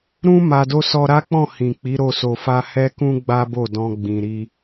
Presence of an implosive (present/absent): absent